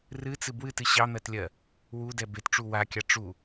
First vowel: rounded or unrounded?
unrounded